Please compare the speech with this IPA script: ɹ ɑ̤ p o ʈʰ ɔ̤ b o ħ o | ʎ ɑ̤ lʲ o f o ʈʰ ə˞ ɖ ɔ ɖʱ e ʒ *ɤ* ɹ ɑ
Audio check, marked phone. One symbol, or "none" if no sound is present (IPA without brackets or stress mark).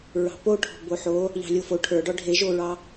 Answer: o